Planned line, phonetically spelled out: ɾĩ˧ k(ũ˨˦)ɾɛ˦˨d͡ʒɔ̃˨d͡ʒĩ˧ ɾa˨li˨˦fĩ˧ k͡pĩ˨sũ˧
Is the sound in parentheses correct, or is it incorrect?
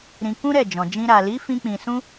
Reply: incorrect